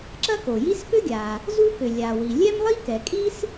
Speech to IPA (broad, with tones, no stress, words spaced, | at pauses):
ǁɐ˥ko˩ji˥s pʏ˥ɡʲa˩ | zu˥kʏ˩ lʲa˩wi˩ lʲɛ˥mlˠi˥ kɛ˩kʼi˥s